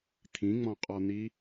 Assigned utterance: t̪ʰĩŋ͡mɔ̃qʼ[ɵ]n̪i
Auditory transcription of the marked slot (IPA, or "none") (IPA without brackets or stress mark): ɔ